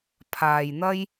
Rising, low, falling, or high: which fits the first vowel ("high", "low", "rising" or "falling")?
low